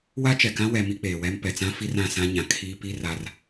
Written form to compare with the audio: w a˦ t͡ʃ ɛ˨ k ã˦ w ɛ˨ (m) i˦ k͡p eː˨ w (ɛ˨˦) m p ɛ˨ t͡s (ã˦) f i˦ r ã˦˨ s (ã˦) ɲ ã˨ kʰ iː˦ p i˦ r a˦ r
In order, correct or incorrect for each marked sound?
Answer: correct, incorrect: ɛ˦, correct, correct

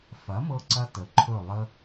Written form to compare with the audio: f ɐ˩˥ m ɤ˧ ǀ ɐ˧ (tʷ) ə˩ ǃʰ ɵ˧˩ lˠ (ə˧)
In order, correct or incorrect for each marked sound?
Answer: incorrect: t, correct

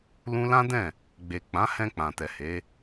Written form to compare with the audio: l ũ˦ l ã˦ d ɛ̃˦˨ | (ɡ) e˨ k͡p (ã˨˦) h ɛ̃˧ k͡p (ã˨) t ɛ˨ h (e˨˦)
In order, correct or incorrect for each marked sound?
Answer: incorrect: ɡ͡b, correct, correct, correct

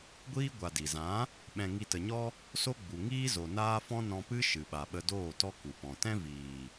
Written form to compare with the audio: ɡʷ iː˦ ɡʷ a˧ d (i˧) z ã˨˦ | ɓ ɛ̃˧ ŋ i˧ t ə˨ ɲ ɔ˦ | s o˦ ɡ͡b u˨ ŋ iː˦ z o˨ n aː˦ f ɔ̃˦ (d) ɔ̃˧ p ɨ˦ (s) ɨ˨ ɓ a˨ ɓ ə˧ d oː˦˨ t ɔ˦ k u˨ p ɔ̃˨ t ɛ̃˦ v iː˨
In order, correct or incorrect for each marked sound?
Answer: incorrect: i˨, incorrect: n, incorrect: ʃ

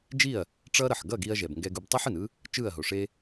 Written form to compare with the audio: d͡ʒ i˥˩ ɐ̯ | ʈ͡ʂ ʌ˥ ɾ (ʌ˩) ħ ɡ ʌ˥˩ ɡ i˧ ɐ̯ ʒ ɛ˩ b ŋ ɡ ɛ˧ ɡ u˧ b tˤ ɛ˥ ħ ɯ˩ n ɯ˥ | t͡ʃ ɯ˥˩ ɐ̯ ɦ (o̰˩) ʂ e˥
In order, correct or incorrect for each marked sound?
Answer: correct, incorrect: o˩

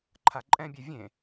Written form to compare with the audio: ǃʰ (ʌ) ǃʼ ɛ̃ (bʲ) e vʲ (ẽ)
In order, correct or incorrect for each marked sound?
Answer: incorrect: a, correct, correct

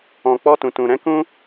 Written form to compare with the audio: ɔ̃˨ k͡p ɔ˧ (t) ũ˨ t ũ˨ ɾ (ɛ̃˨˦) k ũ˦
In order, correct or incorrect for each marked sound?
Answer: correct, correct

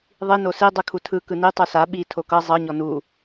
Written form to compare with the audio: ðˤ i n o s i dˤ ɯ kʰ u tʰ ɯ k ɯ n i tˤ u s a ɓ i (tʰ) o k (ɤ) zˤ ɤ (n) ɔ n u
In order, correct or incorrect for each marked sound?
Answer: correct, correct, incorrect: ɲ

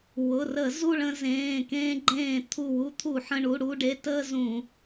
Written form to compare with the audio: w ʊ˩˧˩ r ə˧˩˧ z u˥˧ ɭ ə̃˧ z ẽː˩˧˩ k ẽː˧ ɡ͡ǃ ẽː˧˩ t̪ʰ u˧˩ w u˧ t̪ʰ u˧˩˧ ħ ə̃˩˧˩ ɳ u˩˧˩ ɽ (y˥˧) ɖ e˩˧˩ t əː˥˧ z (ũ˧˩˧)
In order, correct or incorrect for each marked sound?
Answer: incorrect: u˥˧, correct

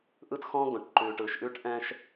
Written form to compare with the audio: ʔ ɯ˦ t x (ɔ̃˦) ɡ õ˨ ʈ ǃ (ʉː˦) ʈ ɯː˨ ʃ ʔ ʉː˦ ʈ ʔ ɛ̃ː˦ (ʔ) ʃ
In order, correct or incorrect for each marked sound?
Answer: correct, incorrect: ʉː˨, incorrect: none

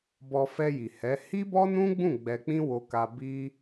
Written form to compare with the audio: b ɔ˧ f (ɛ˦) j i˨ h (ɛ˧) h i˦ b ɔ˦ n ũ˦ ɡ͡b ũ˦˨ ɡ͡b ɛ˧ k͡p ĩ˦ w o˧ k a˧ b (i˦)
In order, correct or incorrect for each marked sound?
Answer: incorrect: ɛ˧, incorrect: ɛ˨˦, correct

